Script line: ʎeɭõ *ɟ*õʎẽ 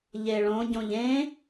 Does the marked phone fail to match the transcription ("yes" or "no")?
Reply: no